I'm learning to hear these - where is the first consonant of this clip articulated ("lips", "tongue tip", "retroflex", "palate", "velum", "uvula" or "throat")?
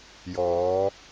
palate